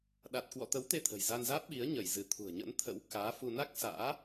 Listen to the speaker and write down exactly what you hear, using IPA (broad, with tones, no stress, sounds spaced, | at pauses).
ɗ a˨˩ t̚ k w ɔ̰˧˨ t̪ ə˨˦ w t̪ e˧ t̪ʰ ə̤˨˩ j z a˧ n z aː˦˥ p̚ ɓ i˨˦ ə̯ ɲ ə˧˩ j z ɨ˧˩ t̪ʰ ṳ˨˩ ə̯ ɲ ə̰˧˥ n t̪ʰ ə̰˧˥ w k aː˨˦ f u˧ n a˦˥ k̚ s a̰ː˧˥